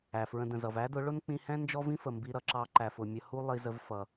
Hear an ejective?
no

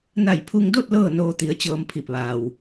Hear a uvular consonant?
no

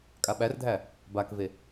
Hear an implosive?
yes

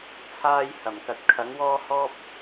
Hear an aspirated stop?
yes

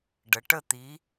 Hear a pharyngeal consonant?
no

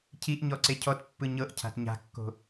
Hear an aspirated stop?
yes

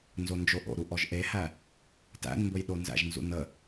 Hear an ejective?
no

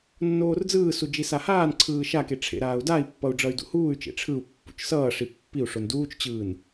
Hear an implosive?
no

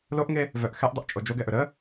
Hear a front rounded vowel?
yes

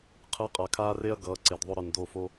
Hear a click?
yes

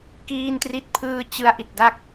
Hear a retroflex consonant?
no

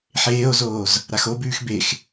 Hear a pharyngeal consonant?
yes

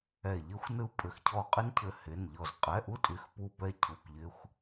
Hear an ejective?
yes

